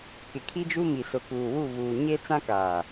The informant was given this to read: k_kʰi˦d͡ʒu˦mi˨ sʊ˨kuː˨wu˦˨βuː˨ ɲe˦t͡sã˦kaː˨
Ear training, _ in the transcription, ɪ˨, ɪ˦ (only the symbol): ɪ˨